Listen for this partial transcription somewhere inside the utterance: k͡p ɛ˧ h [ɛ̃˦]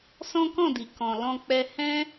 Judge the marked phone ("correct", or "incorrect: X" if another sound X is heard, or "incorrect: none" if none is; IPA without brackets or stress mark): correct